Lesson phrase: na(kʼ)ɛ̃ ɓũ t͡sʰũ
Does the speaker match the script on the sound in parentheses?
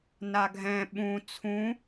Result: no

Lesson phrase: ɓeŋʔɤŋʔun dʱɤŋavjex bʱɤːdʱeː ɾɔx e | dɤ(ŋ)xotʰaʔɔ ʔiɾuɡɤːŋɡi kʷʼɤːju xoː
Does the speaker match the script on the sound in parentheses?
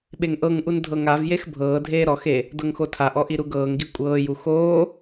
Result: yes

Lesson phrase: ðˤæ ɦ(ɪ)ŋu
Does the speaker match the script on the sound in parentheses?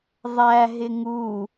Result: yes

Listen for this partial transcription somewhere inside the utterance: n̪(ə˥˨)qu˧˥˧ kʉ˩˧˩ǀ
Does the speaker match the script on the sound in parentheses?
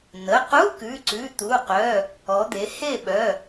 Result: no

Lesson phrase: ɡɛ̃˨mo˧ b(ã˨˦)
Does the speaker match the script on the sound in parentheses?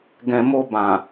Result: no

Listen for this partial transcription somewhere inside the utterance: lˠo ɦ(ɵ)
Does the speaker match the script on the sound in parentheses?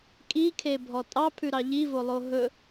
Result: yes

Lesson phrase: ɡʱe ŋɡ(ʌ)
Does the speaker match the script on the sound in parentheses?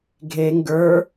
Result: no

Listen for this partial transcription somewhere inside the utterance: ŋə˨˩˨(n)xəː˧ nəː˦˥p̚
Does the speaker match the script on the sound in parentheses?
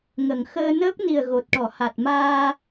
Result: no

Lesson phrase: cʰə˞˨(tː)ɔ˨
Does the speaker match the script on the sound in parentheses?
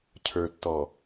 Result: yes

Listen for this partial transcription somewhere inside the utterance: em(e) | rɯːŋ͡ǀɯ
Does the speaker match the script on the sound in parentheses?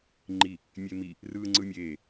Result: no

